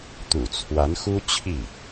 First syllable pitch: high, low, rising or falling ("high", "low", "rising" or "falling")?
low